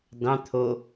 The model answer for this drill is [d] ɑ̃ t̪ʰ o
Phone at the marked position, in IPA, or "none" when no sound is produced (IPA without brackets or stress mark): d